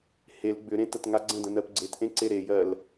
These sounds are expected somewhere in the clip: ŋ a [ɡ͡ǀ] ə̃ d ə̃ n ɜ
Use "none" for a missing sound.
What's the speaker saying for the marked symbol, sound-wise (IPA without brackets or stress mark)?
ɡ͡ǀ